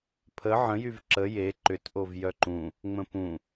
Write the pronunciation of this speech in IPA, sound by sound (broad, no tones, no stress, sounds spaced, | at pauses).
pʰ ə ʕ ə̃ j y v ǁ ə j e ǃ ʏ t ʔ o v j œ ǃ ũ | ŋ͡m ə̃ p ũ